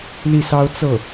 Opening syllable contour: falling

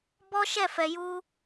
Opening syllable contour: high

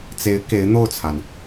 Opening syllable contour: rising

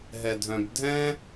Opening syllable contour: low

